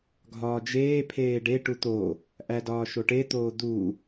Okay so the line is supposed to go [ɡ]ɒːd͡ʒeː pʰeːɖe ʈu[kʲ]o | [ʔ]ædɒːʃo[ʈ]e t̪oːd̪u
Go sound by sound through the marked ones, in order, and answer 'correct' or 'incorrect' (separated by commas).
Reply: incorrect, incorrect, correct, correct